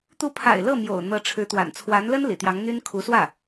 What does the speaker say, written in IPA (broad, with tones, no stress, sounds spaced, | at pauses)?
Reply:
t̪ u˧˥ pʰ a̰˨˩ ɪ̯ l ɤ˥˩ m j o̰˨˩ ʊ̯ n̪ ɤ˧˥ ʈ͡ʂʰ ɻ̩˧˥ t̪ w a̰˨˩ n t͡sʰ w a˧˥ n l ə˥ n l ḭ˨˩ t̪ j ɑ˧˥ ŋ n̪ y˥ n kʰ u˧˥ s w ä˥˩